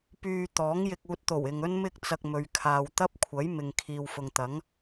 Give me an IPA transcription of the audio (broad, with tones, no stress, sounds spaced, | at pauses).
p yː˧ t̪ ɔː˨˥ ŋ j ɪ˧ k̚ uː˧ t̚ t̪ o˨˩ w ɪ˨ ŋ ɵ˥ n m ɪ˥ k̚ t͡s ɐ˧ k̚ m ɵ˨ ɥ kʰ aː˨ w t̪ ɐ˥ p̚ kʷʰ ɐ˨˥ j m ɪ˨ ŋ kʰ iː˨ w f ʊ˨ ŋ t̪ ɐ˨˥ ŋ